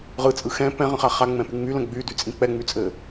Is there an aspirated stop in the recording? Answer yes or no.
no